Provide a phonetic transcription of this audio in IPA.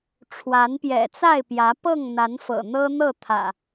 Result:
ʈ͡ʂʰ w a˨˦ n p j ɛ̰˨˩ t͡s a˥˨ ɪ̯ p j ä˨˦ p ɤ˥˨ ŋ n̪ a˨˦ n f ɤ̰˨˩ n̪ ɤ˦ n̪ ɤ˥˨ t̪ʰ ä̰˨˩

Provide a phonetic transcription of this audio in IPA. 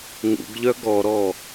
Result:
ŋ ṵ ɡ ʎ œ ɡ ɔ ɾ ɔ

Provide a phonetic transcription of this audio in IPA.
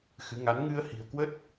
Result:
x ɨ˨˦ ŋ a˨˦ n ŋ ɨ˧ ə̯ h i̤˨˩ ə̯ k w ə˦˥ t̚

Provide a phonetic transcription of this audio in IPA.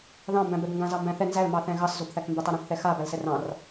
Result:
ð ɑ̃ m b æ̃ b ɛ b ŋ ɡ ã z ɑ m b æ̃ θ ɛ n z æ l m ɑ θ ɛ̃ ɣ ɑ s z o b θ æ k m b ɛ tˤ a ɾ õ k θ ɛ x a b æ l s ɛ r ɑ̃ r

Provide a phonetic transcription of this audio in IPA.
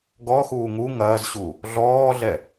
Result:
ɡ ɔ x uː ŋ u ŋ ɐː z ɕ u | ɮ ɔː ɮ ɛ

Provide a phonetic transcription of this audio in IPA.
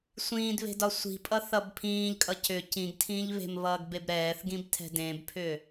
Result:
sʷ ĩː d β e̤ d ɒ sʷ i̤ pʼ ʌ θ ʌ b pʰ ĩː ʎ kʼ ʌ c ʏ c ĩ ɡ tʰ ĩː ʎ β e̤ m β ʌː ɡ b e b ɾ ɛː θ ɡ ĩ b tʰ ɛ̤ d ẽ b pʰ ʏ

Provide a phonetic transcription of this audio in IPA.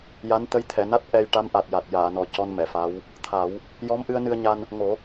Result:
j a˧˥ n t̪ ə˧˥ j t̪ʰ ɛ˨˩˨ n a˦˥ t̚ ʔ ɛ˧ j ʈ a˧˥ m ʔ a˨˩ t̚ j a˨˩ t̚ j aː˨˩˨ n ɔ˨˩ c ɔ˧ n m ɛ˨˩˨ f a˧˥ w | t̪ʰ a˨˩˦ w | j ɔ˧˥ m ʔ ɨ˧ ə̯ n ɨ˧ ə̯ ɲ a˧ n | ŋ o˨˩˦

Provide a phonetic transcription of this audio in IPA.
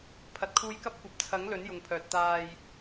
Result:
pʰ ɐ˨ t̚ kʰ uː˧ j k ɐ˥ p̚ kʷ ɐ˨˥ p̚ t͡sʰ ɐ˨˥ ŋ l ɵ˨˥ n j ʊ˨ ŋ pʰ œː˨ t̚ t̪ aː˧ j

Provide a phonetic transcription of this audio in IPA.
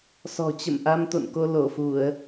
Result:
s ɔ̤˨˩ t͡ɕ ə̰˧˨ m ʔ a˧ m t̪ o̰˧˨ n k o˧ l o˧˩ f u˧˩˨ ə̯

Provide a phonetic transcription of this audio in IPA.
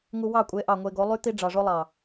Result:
ŋ u˧ w ɑ˦˨ kʷʼ e˨˦ ʔ ɑ˨ ŋʷ e˧ ɡ o˨˦ lˠ y˦ t̪ i˦ ɖ͡ʐ ɑ˨ ʐ o˦ lˠ ɑ˨

